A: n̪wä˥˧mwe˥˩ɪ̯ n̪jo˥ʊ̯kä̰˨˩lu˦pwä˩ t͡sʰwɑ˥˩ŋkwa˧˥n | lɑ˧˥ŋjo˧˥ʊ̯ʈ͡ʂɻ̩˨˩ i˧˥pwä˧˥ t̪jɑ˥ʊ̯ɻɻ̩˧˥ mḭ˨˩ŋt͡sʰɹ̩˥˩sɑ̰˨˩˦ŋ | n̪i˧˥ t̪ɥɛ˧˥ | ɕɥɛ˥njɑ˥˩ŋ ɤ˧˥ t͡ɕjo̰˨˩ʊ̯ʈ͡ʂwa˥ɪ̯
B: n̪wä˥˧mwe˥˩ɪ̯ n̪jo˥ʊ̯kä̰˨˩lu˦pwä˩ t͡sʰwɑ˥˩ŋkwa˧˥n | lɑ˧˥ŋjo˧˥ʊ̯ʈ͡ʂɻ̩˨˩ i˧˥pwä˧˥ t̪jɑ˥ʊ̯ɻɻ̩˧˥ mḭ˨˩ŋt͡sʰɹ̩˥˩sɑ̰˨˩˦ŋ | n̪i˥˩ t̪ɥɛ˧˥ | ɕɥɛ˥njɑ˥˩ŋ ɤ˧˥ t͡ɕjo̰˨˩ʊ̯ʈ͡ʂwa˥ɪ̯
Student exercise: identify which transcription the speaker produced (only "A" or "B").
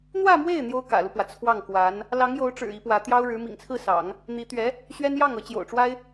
A